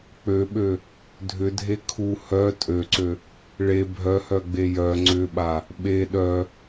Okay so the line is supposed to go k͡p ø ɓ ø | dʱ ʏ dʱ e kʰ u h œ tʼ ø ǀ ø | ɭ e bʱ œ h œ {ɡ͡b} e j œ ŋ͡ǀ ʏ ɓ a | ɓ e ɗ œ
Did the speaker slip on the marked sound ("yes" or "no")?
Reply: no